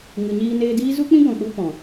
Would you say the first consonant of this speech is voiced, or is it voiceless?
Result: voiced